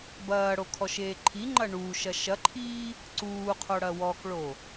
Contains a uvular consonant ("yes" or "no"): yes